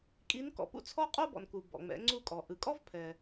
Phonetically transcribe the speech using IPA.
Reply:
kʼi˧˥nkɔ̰˩˧pṵ˥ t͡sʰɔ˥qʼo˥bɔ̰˩nku˩ bɔ̰˩ŋ͡mɛ̰˩˧ŋ͡ǀu˧kʼɔ˩ ʔɯ˩kʼɔ˥vpʰɛ˩

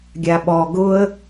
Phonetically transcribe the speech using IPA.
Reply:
ɡʲaɓɔ ɡʊə̯

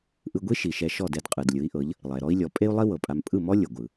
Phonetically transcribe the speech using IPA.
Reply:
ʔɯ˧ɡʷi˥ ʃi˩ ʃɛ˧ʃɔ˥˩dɛ˧d qʼɯ˩dlʲɯ˩˥i̯ʔɤ˩˥ʎ | lˠɛ˩ɾɔ˥i̯lʲɔ˩˥ pʼe˥u̯lˠi˥ wɤ˩pʼa˧m pʼɯ˥˩mɔ˥ lʲɤ˩ɡʷɯ˩

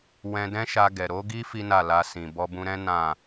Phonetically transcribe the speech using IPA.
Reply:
wɛ̃˧dɛ̃˦ʃa˧ɡɛ˨ ɾo˨˦ɡi˦ fi˦na˦˨la˧sĩ˨ bɔ˧bũ˧ɾɛ̃˦ nã˦˨

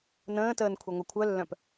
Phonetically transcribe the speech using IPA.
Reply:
nə̃ːtəːn kʷʰeŋʷɐkʷʰœlːœ̃p

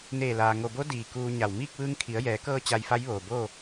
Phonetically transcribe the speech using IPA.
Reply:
neː˧˩laː˩ ŋo˩bo˧˥ diː˩ kuː˧ɲa˧˩w miː˥˨k̚ʋɯː˧ŋ kʰi˩˧ə̯jɛː˩˧kɤː˧ t͡ɕa˧jfa˧˥jʋoː˩boː˥˨

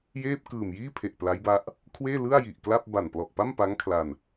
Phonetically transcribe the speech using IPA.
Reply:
jeː˥˩p̚ kɯː˨˩mjiː˥˩pʰe˨˩ʔ pla˦˥jba˦˥ʔ | kʰweː˥˩lɯ˥˩a̯ji˨˩ʔkla˥˩p̚ ba˨˩nplɔ˨˩ʔpa˥˩mpa˦˥ŋ kʰla˧n

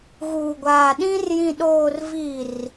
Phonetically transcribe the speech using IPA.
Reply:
ɣuː˨ɡʷaː˨ɗĩ˦r jĩ˨ɗoː˨rvi˨r

